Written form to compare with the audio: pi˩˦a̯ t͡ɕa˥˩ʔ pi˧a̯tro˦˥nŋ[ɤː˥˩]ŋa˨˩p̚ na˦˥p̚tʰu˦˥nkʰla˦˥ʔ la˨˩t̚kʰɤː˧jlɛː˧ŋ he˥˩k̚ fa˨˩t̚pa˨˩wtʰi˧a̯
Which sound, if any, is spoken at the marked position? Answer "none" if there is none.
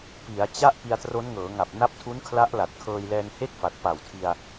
ɤː˩˦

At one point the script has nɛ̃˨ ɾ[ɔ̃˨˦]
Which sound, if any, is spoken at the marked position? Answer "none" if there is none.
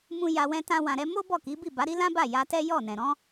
ɔ̃˨˦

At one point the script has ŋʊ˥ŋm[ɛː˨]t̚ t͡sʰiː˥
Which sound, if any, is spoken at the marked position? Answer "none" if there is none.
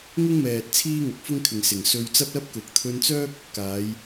ɛː˨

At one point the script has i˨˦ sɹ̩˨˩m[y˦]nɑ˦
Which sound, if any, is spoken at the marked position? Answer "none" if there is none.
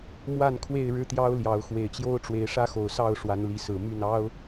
y˥˨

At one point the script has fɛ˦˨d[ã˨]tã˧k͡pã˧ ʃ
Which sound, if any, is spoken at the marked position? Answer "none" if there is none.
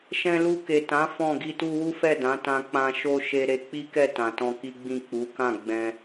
ã˨˦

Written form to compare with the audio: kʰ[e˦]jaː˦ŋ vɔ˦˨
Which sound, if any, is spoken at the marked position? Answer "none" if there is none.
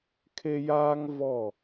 e˦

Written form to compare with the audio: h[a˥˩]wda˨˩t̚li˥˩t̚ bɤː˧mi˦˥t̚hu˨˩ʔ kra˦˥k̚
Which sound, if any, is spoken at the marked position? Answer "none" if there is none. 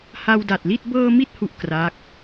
a˧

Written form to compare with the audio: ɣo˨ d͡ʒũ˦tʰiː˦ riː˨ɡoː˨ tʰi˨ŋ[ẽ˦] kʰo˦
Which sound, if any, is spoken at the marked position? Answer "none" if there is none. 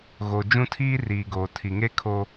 e˦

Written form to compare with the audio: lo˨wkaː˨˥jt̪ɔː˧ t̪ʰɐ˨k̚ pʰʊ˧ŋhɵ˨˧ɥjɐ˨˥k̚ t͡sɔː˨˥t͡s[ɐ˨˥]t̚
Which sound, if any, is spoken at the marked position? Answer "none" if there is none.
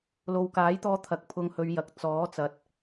ɐ˨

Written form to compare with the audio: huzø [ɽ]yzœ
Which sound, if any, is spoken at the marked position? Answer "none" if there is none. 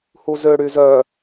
ɽ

